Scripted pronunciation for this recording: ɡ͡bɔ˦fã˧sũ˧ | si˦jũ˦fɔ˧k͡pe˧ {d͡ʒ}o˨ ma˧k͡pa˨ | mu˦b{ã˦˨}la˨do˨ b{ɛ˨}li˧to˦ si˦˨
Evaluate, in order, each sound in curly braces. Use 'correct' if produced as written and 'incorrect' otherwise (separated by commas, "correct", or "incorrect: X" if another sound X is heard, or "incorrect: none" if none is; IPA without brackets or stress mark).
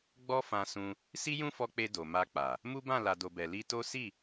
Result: incorrect: d, correct, correct